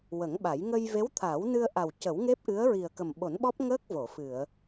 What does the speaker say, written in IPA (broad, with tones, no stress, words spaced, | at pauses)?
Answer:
wə˨˩˦ŋɓa˨˩˦j ŋə˧j ve˧˥wt̪ʰa˨˩˦wnɨ˧ə̯ʔa˨˩w cə˨˩˦wŋe˦˥p̚ʔɨ˧˥ə̯ ɹi˨˩ə̯kə˨˩mɓo˨˩˦nɓɔ˦˥p̚ ŋəː˦˥k̚vo˨˩˨ fɨ˨˩˨ə̯